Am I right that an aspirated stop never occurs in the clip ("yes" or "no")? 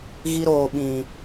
yes